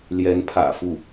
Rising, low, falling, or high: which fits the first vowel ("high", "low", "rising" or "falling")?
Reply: rising